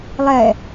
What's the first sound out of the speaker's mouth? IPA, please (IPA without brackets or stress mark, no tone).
lˠ